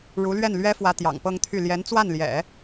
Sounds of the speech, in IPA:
ɻ u˧˥ l ɥ ɛ˥˩ n l ɥ ɛ˥ f w ä˧˥ t̪ j ɑ̰˨˩ ŋ p ɤ˥˧ ŋ t̪ʰ y˥˩ l j ɛ˧˥ n t͡s w a˥˩ n l j ɛ̰˨˩˦

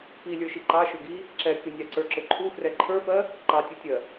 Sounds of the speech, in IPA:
p i lʲ ə˞ ʃ i ǃ ɑ ʃ ʊ ɡ i | ǁ ɛ kʲ ʊ nʲ ɑ ǀ ə˞ ǁ ʊ ǃʰ u f r ɛ ǃʰ ə˞ f ɜ | ǃ ɑ tʲ u tʲ ɜ

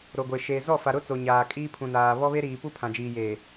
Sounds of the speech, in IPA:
ɾ o˨ ɡʷ e˨ ʃ eː˨ z ɔ˦˨ f a˨ ɾ ʊ˦ t͡s o˨ ɲ aː˨ kʼ iː˦ pʰ ũ˨ n aː˨ β ɔ˦ β e˦ ɾ iː˨ p u˦ pʰ ã˨ d͡ʒ iː˨ j eː˨

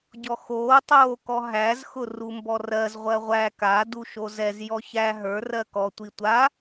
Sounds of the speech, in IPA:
ɟ ɔ x oː tˤ oː k ɔ ɦ æ z x ʊ r u m b ɔ r ɜ z ʁʷ ɜ ʁʷ æ k a d u ʃ o z ɛ z j ɔ ç æ ɦ ə˞ r ɜ k ɔ tʷ i tʷ a

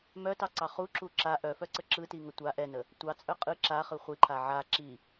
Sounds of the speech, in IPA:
m œ t ɑ ǀ ɑ χ u ǁ u ǁ a ʔ œ f œ ǀ ə ǁ ɯ t i ŋ ə tʷ a ʔ ɛ n ə | tʷ ɑ t͡sʼ œ qʼ ɯ ǁ a χ ɯ χʷ i ǃʰ a ʕ a ǁ i

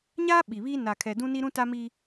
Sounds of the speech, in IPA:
ɲ aː˦ ɓ i˨ β iː˦ n a˨ kʰ ɛ˨ d ũ˦ n i˦ ɾ ũ˦ t a˦ m i˦

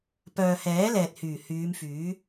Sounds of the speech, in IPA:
p œː˧ h ɛː˨˥ l ɛː˨ t̚ h yː˨˩ h yː˨˧ m f yː˨˥

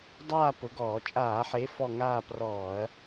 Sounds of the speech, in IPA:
dˤ aː˦˨ p ʊ˨˦ ɡ ɔː˧˩˧ t͡ʃʼ aː˧˩˧ ħ e˨˦ f ɔ˦˨ ŋ aː˦˨ p r ɔː˧˩˧ ɐ̯

